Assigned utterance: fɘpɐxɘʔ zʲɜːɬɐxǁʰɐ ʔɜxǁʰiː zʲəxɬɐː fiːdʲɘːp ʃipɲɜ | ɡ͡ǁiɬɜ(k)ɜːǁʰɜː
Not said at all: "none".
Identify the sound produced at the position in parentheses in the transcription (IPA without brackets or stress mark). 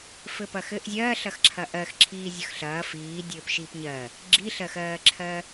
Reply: x